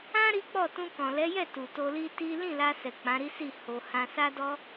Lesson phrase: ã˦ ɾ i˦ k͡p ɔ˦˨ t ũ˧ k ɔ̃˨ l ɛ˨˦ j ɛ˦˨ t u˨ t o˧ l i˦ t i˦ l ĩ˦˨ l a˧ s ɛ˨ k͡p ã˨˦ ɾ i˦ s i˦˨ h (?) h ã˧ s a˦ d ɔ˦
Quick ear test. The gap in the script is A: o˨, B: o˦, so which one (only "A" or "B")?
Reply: A